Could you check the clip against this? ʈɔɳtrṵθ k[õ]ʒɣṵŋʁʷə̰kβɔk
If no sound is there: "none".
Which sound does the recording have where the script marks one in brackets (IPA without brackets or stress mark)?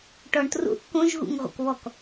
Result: õ